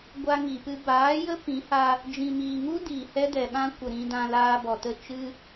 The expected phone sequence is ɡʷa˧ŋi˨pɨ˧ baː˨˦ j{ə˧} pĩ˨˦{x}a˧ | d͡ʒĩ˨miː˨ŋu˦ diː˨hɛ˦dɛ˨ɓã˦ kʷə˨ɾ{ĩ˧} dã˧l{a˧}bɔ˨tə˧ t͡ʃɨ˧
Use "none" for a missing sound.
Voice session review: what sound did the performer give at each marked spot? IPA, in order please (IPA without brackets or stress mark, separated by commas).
ə˦, h, ĩ˧, aː˧